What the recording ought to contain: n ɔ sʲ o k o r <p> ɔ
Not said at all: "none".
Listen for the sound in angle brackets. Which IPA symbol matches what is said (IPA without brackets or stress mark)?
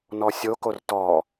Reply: t